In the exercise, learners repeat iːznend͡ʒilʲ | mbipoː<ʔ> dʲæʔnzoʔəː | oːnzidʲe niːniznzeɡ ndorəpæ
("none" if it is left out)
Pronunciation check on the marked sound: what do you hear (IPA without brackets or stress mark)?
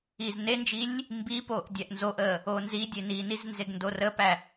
ʔ